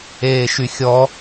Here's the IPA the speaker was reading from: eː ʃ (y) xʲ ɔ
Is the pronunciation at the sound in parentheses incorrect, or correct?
correct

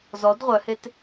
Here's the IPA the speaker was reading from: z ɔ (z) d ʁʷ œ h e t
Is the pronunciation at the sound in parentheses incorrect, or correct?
incorrect: none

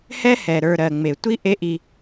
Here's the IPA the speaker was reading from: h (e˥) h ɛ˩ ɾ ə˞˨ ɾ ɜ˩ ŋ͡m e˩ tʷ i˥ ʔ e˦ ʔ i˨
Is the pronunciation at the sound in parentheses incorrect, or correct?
incorrect: ɛ˥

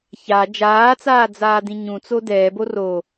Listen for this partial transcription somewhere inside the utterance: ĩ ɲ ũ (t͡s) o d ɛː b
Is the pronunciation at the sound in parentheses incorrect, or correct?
correct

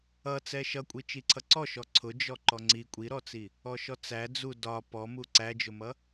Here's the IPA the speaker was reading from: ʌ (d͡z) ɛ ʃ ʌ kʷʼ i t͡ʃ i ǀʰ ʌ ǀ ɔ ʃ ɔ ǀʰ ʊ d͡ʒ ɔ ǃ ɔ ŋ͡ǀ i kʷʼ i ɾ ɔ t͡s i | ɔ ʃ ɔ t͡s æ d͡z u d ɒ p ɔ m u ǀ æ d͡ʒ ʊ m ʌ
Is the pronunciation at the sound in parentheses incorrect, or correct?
incorrect: t͡s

